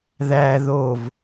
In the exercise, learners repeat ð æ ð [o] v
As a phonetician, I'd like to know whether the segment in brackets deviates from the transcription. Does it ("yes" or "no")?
no